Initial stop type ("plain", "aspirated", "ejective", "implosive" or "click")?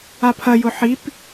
aspirated